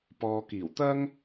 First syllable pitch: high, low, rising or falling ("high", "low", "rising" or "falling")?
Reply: low